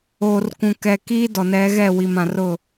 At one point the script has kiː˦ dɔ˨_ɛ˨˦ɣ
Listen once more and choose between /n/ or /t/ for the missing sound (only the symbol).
n